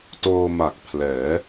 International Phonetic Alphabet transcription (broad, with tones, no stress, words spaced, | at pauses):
toː˧ma˨˩k̚ pʰlɛː˩˦